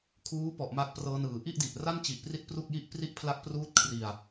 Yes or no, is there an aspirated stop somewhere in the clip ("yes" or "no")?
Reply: yes